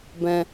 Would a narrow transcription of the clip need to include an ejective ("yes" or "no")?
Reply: no